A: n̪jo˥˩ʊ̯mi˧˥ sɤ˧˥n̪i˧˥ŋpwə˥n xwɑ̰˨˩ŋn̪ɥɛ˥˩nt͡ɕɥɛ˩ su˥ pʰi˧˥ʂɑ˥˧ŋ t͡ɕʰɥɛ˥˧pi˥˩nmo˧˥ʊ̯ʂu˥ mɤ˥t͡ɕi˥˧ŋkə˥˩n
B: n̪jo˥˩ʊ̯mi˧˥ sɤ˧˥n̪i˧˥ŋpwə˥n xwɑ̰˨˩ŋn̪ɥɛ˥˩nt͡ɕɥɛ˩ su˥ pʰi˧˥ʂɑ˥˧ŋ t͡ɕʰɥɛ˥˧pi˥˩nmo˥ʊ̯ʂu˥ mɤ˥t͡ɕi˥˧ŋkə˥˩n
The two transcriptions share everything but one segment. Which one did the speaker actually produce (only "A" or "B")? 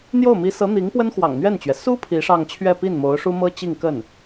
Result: A